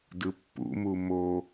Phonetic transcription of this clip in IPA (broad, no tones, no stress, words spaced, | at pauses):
dɯpːṵmu mo